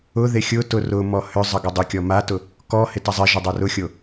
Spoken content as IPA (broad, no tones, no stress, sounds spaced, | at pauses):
ʊ ð e xʲ ʊ t ʊ r ʊ m ɔ h ʏ zˤ ə ɡ ʏ dˤ ɪ kʲ ɔ m a t ʊ | k ɔ h ɪ t ɐ zˤ ɪ ʒ ɪ dˤ ɐ r ʊ xʲ o